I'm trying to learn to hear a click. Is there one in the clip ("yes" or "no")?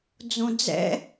no